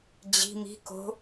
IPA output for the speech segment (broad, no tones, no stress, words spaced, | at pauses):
d͡ʑi̤ mi̤ ko̤